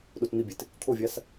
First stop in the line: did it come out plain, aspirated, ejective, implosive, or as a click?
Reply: implosive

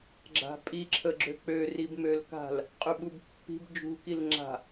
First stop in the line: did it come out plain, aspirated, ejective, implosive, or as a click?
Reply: click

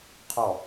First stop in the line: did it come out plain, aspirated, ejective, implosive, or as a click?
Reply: aspirated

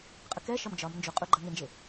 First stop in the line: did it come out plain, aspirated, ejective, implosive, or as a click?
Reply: ejective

